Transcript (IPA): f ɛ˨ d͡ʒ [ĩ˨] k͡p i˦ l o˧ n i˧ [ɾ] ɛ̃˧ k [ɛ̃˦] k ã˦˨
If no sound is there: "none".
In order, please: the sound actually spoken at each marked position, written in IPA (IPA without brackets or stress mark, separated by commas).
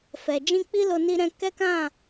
ĩ˧, ɾ, ɛ˦